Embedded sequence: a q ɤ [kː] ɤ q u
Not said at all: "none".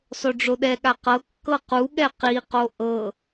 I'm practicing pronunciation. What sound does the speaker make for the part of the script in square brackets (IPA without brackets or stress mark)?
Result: kː